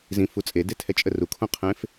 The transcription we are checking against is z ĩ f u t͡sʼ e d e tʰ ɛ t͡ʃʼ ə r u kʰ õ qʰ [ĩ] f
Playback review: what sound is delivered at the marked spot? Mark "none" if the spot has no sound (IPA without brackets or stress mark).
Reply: ẽ